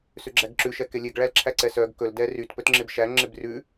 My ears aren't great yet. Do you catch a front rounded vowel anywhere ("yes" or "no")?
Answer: yes